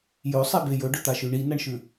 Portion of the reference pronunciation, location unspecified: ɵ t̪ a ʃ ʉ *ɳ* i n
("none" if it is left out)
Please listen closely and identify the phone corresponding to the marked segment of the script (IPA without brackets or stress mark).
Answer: ɳ